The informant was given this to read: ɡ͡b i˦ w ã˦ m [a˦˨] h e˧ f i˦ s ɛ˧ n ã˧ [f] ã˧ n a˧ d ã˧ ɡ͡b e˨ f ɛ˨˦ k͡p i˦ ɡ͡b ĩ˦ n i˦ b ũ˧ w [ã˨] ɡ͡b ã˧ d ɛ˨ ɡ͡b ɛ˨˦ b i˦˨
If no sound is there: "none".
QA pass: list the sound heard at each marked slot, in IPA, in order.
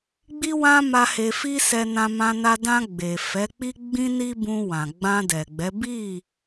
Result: a˦, m, ã˨

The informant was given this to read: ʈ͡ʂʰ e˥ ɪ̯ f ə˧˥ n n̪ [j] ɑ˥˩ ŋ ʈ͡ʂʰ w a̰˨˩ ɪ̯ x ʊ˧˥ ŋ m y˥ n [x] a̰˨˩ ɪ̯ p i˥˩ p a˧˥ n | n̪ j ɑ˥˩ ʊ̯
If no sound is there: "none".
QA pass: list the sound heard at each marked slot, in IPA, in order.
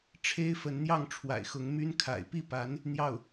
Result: j, kʰ

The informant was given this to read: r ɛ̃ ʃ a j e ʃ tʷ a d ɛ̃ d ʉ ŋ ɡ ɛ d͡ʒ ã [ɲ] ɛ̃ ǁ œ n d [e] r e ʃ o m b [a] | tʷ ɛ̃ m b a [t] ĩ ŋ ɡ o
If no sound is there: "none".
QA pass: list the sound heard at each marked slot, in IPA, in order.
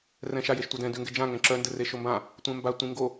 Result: ŋ, ɘ, ã, tʷ

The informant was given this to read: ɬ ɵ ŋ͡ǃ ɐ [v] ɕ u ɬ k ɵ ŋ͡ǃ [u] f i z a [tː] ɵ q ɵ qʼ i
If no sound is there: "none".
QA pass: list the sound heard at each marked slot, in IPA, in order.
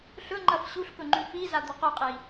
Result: f, ʉ, d̪

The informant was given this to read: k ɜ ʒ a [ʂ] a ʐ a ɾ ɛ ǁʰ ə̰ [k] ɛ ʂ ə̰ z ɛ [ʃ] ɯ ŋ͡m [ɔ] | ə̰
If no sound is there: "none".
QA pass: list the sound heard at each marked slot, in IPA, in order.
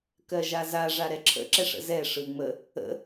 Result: z, ǁ, ʂ, ə

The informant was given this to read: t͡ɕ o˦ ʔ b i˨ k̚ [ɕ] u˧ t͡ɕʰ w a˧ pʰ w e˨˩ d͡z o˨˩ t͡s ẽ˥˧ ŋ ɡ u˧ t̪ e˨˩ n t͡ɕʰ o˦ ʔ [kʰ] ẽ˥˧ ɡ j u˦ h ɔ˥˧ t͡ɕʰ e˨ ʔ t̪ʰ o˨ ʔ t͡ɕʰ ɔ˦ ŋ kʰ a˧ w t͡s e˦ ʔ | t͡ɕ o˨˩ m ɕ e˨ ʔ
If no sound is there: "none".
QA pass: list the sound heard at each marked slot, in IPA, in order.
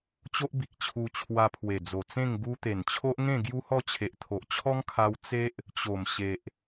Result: t͡ɕʰ, ŋ

